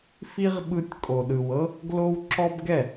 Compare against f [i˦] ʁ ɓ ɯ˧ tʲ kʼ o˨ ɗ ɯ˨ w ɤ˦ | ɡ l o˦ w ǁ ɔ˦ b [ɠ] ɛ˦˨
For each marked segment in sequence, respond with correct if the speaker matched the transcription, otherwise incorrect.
correct, incorrect: ɡ

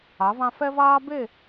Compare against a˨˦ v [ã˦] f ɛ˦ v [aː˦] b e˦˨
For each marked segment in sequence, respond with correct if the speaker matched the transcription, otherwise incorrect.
correct, correct

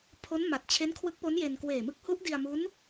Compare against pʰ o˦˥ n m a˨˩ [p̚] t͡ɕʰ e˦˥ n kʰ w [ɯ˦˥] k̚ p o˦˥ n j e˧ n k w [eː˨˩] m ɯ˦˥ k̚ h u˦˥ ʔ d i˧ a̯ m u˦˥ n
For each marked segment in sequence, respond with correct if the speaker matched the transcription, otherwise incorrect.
incorrect: t̚, correct, correct

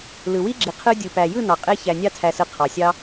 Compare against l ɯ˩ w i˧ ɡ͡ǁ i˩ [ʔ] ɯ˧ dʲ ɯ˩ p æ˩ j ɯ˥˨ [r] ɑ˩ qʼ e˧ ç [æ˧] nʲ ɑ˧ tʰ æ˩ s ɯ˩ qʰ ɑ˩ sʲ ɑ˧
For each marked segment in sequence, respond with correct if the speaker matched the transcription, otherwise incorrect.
incorrect: qʰ, incorrect: n, incorrect: æ˩

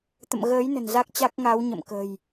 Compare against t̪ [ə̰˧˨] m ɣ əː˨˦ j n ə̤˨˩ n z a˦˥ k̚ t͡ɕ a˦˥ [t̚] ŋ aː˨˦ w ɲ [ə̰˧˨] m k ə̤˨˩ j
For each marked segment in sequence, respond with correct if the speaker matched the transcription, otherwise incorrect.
correct, incorrect: k̚, correct

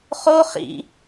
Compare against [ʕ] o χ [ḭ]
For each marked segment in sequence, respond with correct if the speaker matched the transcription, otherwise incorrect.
incorrect: χ, correct

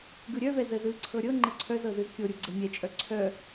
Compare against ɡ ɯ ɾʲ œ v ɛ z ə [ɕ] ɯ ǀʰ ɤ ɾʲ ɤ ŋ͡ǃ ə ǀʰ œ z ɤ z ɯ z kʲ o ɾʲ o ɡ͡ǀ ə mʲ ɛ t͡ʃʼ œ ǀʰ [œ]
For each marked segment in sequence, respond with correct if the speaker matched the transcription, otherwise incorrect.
incorrect: z, correct

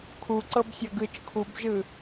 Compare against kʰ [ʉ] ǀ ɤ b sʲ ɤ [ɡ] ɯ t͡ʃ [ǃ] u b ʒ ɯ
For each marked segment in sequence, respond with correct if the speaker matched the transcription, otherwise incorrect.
incorrect: u, correct, incorrect: kʰ

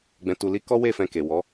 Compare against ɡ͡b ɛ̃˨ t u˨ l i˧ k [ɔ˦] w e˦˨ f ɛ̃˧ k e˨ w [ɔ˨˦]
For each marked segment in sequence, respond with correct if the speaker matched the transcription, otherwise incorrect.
correct, correct

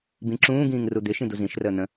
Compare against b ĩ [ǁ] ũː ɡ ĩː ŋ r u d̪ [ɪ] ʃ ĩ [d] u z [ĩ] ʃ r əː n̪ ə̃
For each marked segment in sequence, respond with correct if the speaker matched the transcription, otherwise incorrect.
correct, correct, correct, correct

